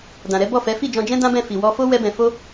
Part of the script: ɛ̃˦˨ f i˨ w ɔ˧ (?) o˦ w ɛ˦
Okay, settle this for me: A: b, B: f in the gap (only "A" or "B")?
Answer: B